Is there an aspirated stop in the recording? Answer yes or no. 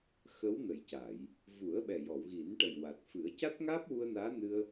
no